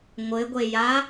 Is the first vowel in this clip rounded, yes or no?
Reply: no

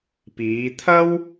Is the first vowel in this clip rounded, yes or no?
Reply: no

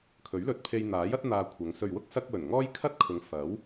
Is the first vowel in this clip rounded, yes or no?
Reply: yes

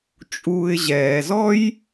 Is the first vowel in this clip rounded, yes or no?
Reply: yes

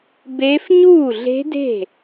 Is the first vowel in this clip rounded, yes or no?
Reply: no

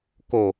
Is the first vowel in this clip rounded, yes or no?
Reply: yes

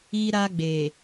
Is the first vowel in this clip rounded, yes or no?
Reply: no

